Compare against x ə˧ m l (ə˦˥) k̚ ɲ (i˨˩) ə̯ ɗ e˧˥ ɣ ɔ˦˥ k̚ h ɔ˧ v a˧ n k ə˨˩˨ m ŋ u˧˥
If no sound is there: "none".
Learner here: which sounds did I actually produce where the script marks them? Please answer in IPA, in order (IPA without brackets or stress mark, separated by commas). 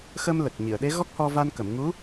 ə˨˩, i˨˩˨